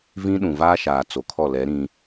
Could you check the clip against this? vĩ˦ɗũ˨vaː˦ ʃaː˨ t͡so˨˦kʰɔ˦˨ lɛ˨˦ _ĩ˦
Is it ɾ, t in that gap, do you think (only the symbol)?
ɾ